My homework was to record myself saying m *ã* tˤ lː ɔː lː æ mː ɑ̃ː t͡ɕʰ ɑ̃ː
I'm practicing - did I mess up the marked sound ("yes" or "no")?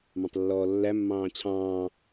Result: yes